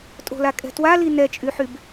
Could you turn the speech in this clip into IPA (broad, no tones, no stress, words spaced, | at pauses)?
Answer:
tʼo̤lakʼɛ̤ twali nɛt͡ʃʼyħyb